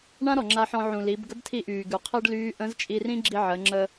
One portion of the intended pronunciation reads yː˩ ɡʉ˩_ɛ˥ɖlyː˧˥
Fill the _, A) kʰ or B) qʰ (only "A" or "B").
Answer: B